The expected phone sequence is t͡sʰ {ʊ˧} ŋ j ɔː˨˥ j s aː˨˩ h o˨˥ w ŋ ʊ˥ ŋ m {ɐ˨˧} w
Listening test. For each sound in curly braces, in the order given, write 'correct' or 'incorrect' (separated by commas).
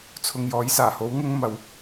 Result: incorrect, correct